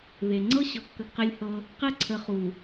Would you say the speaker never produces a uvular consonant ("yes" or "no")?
no